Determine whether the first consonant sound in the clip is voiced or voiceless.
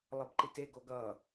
voiced